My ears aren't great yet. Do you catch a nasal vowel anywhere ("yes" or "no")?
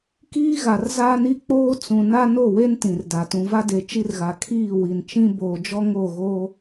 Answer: yes